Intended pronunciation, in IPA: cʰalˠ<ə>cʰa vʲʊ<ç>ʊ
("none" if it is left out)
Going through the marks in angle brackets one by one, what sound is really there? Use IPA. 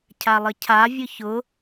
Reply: ə, ç

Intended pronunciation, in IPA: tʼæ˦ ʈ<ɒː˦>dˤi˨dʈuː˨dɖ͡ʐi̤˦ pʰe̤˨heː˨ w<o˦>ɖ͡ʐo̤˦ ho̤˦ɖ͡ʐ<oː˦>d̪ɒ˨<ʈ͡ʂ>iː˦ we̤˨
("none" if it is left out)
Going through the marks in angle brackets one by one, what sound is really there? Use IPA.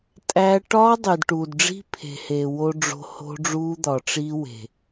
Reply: ɒː˦, o˦, uː˦, ʈ͡ʂ

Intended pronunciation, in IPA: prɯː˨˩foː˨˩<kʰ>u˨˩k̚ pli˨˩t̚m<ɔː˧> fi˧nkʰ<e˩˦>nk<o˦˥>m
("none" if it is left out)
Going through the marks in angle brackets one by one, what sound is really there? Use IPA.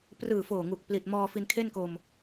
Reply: ŋ, ɔː˧, e˥˩, o˧

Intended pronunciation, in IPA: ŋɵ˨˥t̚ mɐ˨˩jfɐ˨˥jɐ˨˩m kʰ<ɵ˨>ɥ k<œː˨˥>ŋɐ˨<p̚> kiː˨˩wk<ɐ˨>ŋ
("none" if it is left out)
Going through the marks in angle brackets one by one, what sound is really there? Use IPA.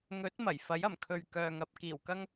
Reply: ɵ˨, œː˨, p̚, ɐ˧

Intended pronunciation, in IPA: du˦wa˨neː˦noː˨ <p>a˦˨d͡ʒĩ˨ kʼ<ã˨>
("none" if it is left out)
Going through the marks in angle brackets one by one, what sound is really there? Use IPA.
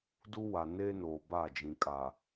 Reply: b, a˨

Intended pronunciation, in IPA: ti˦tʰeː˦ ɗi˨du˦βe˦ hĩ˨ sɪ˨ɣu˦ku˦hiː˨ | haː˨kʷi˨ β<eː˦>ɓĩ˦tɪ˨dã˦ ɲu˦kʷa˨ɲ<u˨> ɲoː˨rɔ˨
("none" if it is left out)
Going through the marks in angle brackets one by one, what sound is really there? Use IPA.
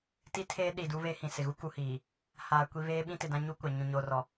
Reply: eː˦, ũ˨

